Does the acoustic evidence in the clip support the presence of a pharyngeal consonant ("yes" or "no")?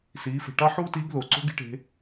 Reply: yes